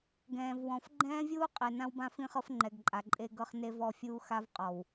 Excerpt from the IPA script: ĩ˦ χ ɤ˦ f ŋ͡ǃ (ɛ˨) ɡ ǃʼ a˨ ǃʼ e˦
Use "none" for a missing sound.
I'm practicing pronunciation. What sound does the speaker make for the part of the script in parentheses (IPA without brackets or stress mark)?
ɛ˨